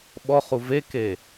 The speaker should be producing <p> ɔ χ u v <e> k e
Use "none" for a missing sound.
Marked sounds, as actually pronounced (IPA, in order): ɓ, e

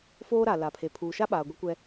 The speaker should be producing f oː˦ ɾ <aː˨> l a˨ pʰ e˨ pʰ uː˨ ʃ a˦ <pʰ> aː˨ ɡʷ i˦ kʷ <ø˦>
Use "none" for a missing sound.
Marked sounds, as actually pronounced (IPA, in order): a˨, ɓ, ɛ˦

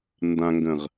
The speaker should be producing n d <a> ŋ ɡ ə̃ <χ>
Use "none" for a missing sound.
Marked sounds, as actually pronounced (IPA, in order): ã, ʁ

